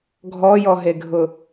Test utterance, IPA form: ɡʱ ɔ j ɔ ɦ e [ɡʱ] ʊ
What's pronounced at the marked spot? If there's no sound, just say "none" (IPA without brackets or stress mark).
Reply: ɡʱ